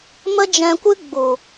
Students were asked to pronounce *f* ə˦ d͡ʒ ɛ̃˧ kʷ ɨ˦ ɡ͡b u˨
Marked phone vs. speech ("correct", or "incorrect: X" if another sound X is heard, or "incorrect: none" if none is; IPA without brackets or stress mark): incorrect: m